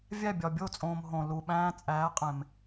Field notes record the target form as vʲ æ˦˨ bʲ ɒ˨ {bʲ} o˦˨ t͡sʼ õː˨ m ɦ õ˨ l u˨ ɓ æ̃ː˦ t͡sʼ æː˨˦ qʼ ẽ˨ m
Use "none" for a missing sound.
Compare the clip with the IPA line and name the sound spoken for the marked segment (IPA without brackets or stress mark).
bʲ